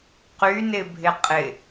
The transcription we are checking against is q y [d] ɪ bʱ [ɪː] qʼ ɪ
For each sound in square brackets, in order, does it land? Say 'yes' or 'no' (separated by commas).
no, no